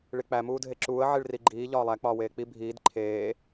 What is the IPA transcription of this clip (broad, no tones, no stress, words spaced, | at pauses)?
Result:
ɭik͡pæ muːdʱeǁuːə̯ ʕiɭriɡ͡ǃiː ʎɒːlˠæ k͡pɒːweːk͡pi bʱiːd ǃʰeː